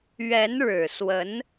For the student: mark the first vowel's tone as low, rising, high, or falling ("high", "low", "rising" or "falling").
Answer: rising